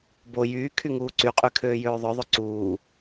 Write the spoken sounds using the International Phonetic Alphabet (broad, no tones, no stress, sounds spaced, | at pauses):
b o j yː kʰ y ŋ uː ǀ y qʼ y kʰ øː j øː ðˤ œ ðˤ ɵ ǀ uː